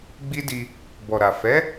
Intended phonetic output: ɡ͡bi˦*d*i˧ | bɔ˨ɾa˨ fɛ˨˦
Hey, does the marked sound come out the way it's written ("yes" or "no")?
yes